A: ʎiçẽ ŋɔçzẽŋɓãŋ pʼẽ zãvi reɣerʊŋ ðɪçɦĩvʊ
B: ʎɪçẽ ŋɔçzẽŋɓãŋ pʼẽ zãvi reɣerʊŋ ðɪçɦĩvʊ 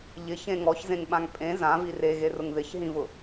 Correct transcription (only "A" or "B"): B